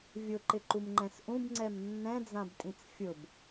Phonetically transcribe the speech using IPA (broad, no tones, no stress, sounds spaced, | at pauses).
vʲ ʊ ǃ ɪ ǃ u m ŋ͡ǃ ɛ̃ s ʔ ũ b ŋ͡ǀ ɛ m nː ɛ̃ d͡z ã b tʼ ĩ t͡s fʲ ʊ b